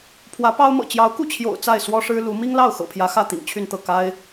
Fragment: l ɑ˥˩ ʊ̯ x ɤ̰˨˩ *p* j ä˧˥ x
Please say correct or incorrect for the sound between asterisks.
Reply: incorrect: pʰ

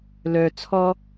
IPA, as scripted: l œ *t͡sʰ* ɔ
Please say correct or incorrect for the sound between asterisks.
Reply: correct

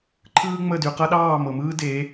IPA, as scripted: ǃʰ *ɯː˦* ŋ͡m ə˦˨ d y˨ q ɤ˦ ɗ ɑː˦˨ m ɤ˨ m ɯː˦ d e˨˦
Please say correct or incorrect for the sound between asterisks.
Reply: correct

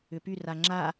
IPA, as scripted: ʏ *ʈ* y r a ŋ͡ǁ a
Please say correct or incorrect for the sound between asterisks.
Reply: incorrect: p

